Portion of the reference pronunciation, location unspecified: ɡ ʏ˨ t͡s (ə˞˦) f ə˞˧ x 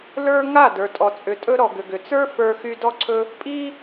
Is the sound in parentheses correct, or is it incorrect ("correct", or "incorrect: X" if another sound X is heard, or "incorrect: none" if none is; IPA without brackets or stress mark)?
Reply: correct